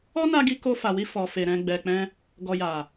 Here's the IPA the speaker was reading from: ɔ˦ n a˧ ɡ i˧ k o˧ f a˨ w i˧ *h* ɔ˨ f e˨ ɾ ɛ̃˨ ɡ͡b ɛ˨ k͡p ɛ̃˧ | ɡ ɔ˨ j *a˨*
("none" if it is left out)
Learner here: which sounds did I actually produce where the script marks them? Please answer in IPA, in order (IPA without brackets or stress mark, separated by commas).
f, a˨